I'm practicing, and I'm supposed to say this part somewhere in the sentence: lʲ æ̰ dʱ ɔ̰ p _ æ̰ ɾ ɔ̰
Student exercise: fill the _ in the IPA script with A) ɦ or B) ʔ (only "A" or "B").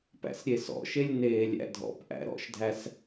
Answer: B